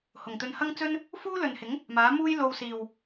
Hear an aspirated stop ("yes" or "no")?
no